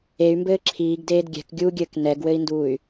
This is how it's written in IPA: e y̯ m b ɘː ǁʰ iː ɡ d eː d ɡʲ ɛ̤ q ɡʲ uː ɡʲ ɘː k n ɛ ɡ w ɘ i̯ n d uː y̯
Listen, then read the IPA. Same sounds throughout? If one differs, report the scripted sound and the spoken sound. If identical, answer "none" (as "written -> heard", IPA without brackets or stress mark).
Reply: q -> k